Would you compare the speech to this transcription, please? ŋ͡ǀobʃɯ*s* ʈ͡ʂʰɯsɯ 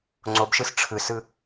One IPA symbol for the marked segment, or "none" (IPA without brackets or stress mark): s